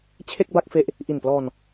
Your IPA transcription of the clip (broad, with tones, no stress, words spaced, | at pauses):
t͡ɕʰe˥˩k̚ba˥˩k̚fe˦˥ʔ | ʔi˨˩nplɔː˧n